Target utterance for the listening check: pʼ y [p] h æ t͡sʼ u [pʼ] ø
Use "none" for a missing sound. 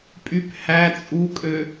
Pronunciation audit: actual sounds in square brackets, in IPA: p, kʼ

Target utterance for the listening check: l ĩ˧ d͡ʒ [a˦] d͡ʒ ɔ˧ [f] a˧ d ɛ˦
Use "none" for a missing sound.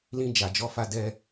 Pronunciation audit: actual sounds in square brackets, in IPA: a˨, f

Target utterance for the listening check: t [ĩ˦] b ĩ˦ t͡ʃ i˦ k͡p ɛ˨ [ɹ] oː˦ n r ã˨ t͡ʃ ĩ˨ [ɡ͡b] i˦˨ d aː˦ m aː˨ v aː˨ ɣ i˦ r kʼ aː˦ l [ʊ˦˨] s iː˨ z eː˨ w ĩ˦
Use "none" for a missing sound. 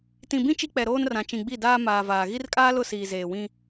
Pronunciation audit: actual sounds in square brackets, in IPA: ĩ˨, ɾ, ɡ͡b, ʊ˦˨

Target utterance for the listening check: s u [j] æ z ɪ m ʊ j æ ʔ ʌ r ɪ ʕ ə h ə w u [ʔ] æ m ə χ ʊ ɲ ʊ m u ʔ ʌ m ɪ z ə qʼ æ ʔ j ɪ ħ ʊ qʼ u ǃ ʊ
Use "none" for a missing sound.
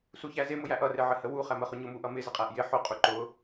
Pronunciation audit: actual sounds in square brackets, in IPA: ç, χ

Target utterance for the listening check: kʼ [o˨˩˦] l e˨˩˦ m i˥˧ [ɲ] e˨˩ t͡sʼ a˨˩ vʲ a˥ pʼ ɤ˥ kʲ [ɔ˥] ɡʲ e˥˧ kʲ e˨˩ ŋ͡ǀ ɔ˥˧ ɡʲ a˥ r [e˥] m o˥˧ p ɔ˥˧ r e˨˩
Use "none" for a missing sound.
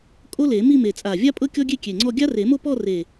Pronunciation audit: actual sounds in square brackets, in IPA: o˥, m, ɔ˥, e˨˩˦

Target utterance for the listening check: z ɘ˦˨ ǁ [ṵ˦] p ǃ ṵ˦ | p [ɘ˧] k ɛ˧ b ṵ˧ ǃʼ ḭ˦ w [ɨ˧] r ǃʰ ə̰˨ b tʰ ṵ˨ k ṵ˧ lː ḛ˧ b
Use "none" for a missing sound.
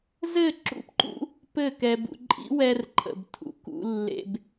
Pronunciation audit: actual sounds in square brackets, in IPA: ṵ˦, ɘ˦˨, ɛ˧

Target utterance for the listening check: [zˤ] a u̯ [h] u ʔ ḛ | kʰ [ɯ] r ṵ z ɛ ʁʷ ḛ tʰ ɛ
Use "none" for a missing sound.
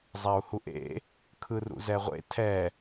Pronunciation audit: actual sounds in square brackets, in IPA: zˤ, h, ɯ

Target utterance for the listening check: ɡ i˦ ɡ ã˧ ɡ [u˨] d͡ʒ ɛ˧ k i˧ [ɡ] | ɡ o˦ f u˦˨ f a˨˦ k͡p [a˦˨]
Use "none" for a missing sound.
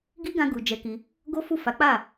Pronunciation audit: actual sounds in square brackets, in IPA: u˨, none, a˦˨

